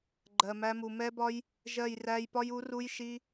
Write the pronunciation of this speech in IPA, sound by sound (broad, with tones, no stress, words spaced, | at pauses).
ɡ͡ǃɜ˨mæ˧mu˨ mɛ˦bɒ˦j | ʒɜ˦˨jræ˦j pɒ˧ju˨˦ru˧j ʃi˧